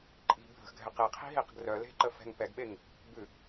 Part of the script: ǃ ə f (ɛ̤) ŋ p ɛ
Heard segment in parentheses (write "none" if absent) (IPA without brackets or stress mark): ɛ̤